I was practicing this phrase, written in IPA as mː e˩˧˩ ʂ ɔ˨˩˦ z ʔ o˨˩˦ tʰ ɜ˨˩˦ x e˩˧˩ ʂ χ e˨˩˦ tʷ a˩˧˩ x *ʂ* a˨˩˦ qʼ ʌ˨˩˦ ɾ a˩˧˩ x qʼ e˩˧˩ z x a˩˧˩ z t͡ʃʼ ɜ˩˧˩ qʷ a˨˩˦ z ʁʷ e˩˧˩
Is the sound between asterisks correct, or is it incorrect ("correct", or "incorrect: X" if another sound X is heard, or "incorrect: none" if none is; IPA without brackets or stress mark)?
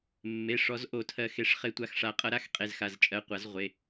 correct